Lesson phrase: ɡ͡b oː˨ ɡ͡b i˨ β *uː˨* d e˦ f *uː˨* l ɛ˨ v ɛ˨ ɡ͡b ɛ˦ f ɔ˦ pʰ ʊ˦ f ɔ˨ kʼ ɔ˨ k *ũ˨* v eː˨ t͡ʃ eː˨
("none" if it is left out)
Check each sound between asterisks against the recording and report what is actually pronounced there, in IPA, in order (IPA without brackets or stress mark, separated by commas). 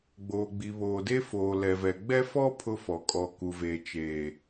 oː˨, oː˨, u˨